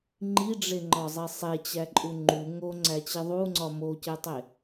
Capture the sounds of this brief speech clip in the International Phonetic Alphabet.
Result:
ŋ͡ǃ i ɖ͡ʐ e ŋ͡ǃ ɒ zˤ e sˤ e t͡ɕ æ ǃʼ u ŋ͡ǃ u ŋ o ŋ͡ǀ æ t͡ɕ i ðˤ u ŋ͡ǀ ɒ m o c e tˤ e

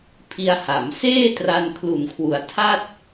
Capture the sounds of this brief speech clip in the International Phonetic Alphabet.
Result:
pʰ i˧ a̯ h a˩˦ m s eː˥˩ t r a˧ n kʰ l u˨˩ n kʰ w u˩˦ a̯ tʰ a˥˩ t̚

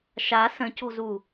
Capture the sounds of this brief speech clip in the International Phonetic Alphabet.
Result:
ʃ a s ə̃ c o̤ z u

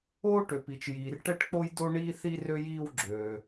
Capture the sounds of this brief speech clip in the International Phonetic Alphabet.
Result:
oː˥ ʈ ø˩ p i˩ t͡ʃ j iː˩ r ʈ ɛ˥ ʈ k͡p o˥ j d o˥ ɳ iː˥ θ i˥ r ø˥ j iː˥ w ɡ͡ǁ øː˩

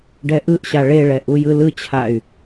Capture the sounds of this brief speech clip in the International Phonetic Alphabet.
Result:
ɖ ɛ ʔ ɯ ʔ ɕ a ɭ e ɭ ɛ ʔ u j ɯ l ɯ t͡ɕʰ a y̯

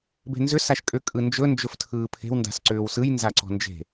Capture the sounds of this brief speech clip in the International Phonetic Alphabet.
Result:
b e̤ n z ʏ s a ʃ kʼ ʏ kʼ ɯ n d͡ʒ ɵ n d͡ʒ ɵ f tʰ ɯː pʰ e̤ w n d a̤ s ǀ ʏː w s ɯ j n z a ǀ ɔ̤ n d͡ʒ e̤

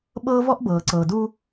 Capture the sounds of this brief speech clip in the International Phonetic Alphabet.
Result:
ɓ ɤː˦ v ɔ˦ ʔ b ɤː˨ ǀ ɤː˨ d uː˦

